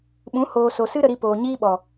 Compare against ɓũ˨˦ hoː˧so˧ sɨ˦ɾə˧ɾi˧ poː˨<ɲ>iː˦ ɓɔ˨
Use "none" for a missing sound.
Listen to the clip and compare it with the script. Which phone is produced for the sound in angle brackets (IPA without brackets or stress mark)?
ɲ